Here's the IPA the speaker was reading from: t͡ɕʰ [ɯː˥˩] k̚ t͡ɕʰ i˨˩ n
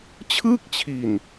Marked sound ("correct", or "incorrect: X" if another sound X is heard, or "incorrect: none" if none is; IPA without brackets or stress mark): correct